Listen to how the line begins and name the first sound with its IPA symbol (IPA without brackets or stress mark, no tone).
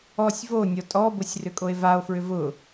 ɔ